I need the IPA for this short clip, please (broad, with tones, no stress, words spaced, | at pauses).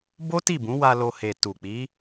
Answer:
bo˦ti˦˨bũ˨˦wa˧ lo˧ he˨tu˨k͡pi˨˦